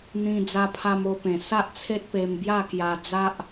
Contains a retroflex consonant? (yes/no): no